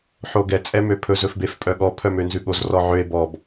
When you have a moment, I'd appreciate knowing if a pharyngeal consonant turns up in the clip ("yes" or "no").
yes